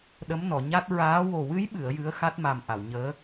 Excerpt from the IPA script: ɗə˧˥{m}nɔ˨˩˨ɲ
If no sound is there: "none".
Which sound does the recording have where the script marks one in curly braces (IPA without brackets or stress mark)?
m